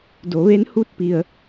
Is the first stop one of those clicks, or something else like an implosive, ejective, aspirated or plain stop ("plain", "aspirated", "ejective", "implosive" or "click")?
plain